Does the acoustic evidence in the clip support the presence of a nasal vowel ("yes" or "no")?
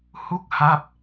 no